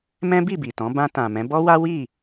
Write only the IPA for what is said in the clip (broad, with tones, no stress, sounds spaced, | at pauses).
m ɛ̃˦ b i˦˨ b i˨ t ɔ̃˨˦ b ã˧ t ã˨ m ɛ̃˨˦ b ɔ˦ w a˦ w i˦˨